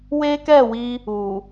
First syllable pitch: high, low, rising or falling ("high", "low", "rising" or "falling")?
high